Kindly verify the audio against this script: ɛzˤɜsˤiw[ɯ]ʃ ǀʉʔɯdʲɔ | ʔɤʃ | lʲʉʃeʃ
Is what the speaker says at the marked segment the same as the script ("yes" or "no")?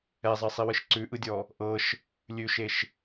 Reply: yes